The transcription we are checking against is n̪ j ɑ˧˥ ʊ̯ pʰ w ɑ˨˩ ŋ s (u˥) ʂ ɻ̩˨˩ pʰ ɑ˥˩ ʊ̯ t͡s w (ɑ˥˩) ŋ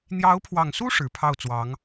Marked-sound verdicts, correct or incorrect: correct, incorrect: ɑ˧˥

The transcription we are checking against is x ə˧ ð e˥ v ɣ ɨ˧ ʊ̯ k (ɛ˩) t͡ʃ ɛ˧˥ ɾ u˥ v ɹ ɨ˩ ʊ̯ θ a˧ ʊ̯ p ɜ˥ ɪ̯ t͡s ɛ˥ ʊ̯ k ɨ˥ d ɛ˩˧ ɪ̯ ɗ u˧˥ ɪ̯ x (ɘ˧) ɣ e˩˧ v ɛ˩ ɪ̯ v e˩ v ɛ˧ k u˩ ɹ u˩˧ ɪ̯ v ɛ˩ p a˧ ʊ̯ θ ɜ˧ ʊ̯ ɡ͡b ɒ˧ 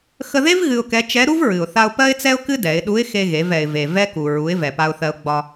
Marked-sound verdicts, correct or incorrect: incorrect: ɛ˧˥, incorrect: e˧

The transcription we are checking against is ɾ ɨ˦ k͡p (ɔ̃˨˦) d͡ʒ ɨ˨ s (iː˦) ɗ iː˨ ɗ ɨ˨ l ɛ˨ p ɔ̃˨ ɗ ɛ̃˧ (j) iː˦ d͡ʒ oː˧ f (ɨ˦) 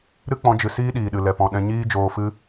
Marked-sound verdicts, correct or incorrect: correct, correct, incorrect: ɲ, correct

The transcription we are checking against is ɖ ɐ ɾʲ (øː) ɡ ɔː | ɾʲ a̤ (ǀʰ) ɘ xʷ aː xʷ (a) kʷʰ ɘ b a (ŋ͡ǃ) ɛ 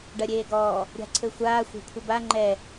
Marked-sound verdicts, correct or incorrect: incorrect: eː, correct, incorrect: a̤, correct

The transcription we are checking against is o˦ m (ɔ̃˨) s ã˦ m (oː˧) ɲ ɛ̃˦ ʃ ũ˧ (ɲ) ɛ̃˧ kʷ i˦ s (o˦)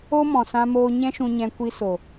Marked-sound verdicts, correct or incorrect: correct, incorrect: oː˦, correct, incorrect: o˨

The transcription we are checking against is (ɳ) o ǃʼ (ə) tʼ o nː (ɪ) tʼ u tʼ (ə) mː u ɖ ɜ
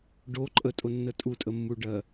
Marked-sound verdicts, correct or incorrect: incorrect: ɖ, correct, incorrect: ə, correct

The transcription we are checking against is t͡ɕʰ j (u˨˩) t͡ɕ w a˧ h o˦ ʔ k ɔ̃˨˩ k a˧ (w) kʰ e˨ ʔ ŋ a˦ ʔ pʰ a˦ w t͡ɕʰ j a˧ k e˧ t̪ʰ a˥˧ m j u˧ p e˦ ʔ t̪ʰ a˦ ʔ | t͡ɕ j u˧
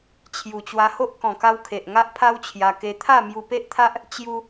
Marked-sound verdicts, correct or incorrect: correct, correct

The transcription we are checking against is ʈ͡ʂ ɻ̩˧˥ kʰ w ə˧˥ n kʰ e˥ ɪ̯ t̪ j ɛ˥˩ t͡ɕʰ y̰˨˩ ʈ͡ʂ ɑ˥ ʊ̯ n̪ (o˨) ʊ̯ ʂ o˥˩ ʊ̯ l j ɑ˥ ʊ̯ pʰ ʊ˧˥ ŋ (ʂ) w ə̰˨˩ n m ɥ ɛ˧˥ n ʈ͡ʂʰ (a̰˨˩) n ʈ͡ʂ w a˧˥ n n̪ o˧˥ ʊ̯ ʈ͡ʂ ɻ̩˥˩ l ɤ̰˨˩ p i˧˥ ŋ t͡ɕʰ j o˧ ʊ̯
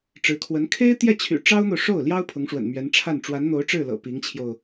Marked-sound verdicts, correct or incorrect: correct, correct, incorrect: a˥˩

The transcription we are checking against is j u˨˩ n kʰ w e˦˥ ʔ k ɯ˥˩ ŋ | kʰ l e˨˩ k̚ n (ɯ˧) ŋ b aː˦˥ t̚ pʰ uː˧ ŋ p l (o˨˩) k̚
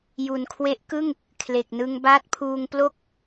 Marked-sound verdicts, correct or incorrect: correct, incorrect: o˥˩

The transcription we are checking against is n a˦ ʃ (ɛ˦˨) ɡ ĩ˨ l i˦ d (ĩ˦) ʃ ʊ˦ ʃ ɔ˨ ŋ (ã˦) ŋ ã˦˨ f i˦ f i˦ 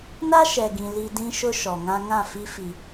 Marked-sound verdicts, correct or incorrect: incorrect: ɛ˨, correct, correct

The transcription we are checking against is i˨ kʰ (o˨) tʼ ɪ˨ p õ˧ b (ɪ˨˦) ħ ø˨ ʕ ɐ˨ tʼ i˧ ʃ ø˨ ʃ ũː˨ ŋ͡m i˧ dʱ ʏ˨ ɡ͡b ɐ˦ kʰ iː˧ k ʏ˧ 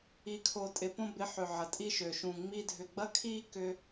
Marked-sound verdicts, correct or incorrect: correct, correct

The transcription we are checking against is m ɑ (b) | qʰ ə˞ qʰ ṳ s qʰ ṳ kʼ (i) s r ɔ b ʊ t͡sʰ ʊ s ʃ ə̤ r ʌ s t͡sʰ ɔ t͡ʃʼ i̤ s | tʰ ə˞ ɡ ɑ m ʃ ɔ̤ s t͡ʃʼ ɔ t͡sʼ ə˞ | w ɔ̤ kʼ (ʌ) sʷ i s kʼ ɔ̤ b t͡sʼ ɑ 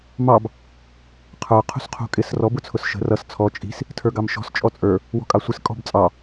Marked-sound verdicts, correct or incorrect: correct, incorrect: ɪ, incorrect: ɑ

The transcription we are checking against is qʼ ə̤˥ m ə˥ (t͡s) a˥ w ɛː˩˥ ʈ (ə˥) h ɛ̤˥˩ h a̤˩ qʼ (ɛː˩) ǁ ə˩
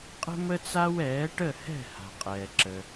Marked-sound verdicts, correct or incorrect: correct, incorrect: ə˥˩, correct

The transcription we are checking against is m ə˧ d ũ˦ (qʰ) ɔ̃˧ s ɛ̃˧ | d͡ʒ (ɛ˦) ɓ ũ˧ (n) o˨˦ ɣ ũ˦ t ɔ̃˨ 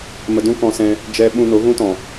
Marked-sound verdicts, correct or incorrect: incorrect: k, correct, correct

